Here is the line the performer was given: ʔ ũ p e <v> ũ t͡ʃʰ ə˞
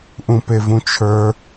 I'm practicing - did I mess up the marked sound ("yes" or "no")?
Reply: no